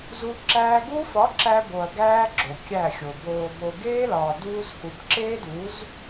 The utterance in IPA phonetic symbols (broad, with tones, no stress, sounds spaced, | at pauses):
z u˧ ǁ æː˧ ɡ u˦ f ɒ˨˦ ǁ æ˧ b o˨ ɐ̯ ɡ æː˧ ɡ͡ǁ o˨ kʲ æ˦˨ xʲ o˨ b oː˨ b o˨ ɡ eː˦ l ɒː˨ d uː˧ z h u˨ b ǁ eː˦ d u˨˦ z